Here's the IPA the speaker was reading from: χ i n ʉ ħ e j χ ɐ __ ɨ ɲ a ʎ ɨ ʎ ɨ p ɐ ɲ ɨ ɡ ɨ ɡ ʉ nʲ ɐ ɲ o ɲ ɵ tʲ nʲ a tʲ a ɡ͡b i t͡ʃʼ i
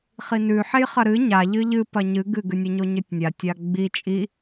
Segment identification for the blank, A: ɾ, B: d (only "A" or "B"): A